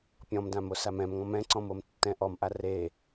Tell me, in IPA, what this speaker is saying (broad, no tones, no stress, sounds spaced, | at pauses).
pʲ ɔ̃ m d ã m o s a m ɛ̃ m ŋ ɔ̃ m ɛ̃ ǀ ɔ̃ m o m tː ɛ̃ ʔ ɔ m ʔ a r e